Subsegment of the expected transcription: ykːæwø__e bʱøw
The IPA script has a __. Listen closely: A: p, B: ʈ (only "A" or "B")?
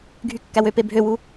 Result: A